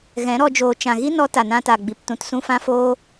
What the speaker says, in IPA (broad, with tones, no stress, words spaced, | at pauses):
ɣɛ̃˨˦ɾɔ˧d͡ʒoː˨ t͡ʃã˨ɣi˦nɔ˧ ta˨nã˧ta˨ɡ͡bi˨p tũ˨tsũ˧ fã˦foː˦